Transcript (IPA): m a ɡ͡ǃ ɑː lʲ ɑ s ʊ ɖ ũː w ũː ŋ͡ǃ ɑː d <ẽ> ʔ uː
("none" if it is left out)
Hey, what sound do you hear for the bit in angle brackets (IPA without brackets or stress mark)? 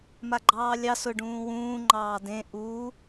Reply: ẽ